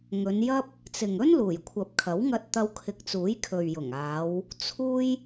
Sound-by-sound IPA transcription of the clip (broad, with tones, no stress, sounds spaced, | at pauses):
ŋ ɵ˨˧ n j ɐ˥ p̚ | t͡s ɪ˨ ŋ ɵ˥ n l uː˨˩ j kʷʰ ɐ˨ p̚ kʰ ɐ˨˥ w ŋ ɐ˧ t̚ t̪ ɐ˧ w kʰ ɪ˨ k̚ t͡s uː˨˥ j kʰ ɵ˨ ɥ j ʊ˨˩ ŋ aː˨˧ w | t͡sʰ uː˥ j